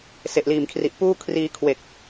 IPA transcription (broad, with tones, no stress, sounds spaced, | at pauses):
s e˨˩ ʔ l iː˨˩ m kʰ r i˨˩ ʔ p uː˥˩ kʰ r iː˧ kʰ w e˨˩ k̚